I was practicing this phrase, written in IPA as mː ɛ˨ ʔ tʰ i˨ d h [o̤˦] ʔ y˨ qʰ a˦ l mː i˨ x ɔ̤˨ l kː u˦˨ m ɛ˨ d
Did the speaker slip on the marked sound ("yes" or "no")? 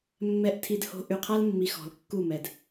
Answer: yes